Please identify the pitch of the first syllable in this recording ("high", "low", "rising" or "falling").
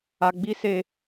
high